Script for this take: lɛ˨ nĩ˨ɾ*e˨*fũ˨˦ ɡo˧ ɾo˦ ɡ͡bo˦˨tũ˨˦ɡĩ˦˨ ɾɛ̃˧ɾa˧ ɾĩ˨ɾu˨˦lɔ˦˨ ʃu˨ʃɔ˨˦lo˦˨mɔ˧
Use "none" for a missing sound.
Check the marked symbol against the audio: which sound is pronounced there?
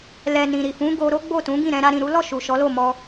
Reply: i˨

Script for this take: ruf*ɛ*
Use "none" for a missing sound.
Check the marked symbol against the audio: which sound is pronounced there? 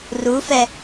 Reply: ɛ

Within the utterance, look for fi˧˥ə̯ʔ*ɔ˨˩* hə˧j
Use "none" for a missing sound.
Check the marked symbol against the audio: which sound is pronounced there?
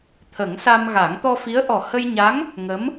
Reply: ɔ˨˩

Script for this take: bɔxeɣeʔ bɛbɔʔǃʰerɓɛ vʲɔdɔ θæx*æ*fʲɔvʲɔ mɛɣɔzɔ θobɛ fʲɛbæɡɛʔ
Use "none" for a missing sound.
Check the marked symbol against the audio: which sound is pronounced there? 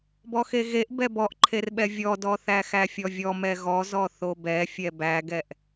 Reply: æ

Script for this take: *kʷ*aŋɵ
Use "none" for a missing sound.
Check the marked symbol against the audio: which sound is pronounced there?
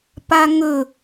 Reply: p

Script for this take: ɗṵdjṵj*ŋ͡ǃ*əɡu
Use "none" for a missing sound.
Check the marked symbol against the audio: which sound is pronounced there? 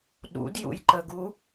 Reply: ǃ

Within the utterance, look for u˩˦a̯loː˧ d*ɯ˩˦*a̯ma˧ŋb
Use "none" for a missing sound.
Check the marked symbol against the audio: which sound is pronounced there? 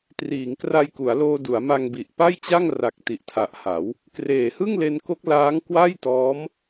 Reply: u˩˦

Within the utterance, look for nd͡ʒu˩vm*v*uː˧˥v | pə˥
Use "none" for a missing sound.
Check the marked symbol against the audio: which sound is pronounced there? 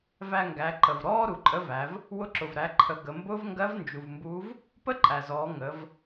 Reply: b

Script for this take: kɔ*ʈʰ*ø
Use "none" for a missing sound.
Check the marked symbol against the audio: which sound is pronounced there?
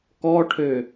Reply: ʈʰ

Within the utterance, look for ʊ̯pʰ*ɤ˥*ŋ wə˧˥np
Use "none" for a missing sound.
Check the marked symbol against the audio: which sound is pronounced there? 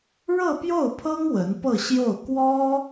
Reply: ɤ˥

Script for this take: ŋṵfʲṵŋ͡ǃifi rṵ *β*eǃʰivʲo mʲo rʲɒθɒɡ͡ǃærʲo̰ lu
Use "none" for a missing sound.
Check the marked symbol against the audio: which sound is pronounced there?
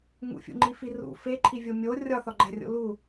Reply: f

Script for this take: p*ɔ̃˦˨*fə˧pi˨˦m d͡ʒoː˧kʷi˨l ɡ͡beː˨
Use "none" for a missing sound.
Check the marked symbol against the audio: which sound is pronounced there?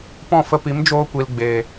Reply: ɔ̃˦˨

